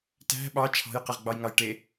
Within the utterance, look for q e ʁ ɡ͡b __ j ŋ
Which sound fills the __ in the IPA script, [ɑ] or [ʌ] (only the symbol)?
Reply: ɑ